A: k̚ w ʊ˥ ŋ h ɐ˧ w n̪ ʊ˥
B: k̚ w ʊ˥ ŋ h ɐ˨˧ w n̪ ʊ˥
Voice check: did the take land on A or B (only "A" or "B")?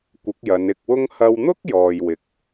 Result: A